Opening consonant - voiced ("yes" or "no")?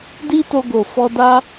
yes